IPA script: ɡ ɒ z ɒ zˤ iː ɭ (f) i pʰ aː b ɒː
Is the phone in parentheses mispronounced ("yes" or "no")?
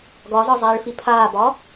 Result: no